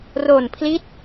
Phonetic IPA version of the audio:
ro˨˩npʰli˦˥t̚

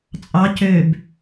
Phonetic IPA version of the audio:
t͡sʼɑ cøb

